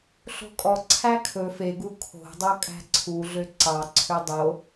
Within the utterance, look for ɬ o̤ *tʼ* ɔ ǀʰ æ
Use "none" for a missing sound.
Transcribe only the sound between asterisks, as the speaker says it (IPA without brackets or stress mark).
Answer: kʼ